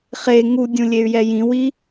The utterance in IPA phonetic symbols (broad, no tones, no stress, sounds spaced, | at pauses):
χ e ŋ u dʲ ũ lʲ e y̯ j ɛ j ĩ w i